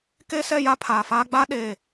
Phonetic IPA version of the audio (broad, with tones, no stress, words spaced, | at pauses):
ke˦sɛ˦˨ja˦ pʰaː˨faː˦ ɡ͡ba˦ɗeː˨